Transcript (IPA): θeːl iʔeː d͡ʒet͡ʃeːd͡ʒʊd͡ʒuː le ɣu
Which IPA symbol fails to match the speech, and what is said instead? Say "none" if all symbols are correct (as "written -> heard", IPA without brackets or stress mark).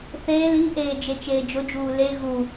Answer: none